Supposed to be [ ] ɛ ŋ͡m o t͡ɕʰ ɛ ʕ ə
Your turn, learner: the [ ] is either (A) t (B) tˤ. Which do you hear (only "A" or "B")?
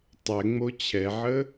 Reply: B